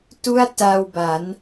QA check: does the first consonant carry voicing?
no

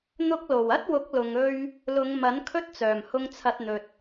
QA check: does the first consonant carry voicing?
yes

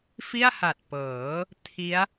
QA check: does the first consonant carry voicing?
no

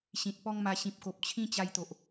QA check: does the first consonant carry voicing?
no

